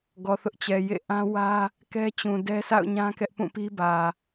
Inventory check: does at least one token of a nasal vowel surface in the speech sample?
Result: yes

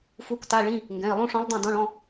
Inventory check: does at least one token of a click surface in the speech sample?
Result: no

